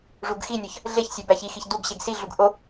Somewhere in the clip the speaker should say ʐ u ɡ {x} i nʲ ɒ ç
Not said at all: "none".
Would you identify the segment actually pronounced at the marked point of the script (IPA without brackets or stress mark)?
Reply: x